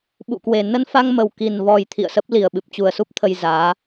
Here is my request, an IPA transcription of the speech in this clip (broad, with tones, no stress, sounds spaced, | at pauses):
ɓ ṵ˧˨ k w e˨˩ n ə˧ n f a˧ ŋ m ə˨˩ w k i˨˩ n v ɔ˨˩ j t̪ʰ ḭ˧˨ ə̯ s ə˦˥ p̚ l i˨˩ ə̯ ɓ ɨ˨˩ p̚ t͡ɕ u˨˩ ə̯ s u˦˥ p̚ t̪ʰ ə˧ j z aː˨˦